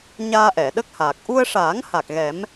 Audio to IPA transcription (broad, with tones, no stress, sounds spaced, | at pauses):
ɲ aː˧ ʔ ɛ˨˩˨ ɗ ə˦˥ k̚ h aː˨˩ k̚ ʔ u˧ ə̯ ʂ aː˨˩˦ ŋ h a˨˩ k̚ ɣ ɛ˨˩˦ m